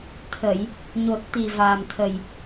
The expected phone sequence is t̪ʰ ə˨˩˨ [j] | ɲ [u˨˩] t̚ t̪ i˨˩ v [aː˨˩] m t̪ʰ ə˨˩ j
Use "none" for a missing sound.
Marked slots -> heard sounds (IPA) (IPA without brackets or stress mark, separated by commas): j, o˨˩, aː˨˩